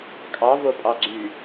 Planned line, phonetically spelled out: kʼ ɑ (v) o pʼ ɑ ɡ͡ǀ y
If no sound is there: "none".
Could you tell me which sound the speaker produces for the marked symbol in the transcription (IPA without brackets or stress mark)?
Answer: v